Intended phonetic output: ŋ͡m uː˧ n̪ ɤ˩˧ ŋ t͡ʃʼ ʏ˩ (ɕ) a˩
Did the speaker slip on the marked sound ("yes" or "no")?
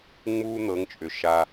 yes